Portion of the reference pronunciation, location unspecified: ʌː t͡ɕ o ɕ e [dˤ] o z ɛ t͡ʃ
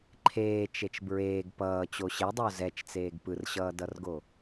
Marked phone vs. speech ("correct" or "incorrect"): correct